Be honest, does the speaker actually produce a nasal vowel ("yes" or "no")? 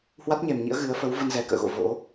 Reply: no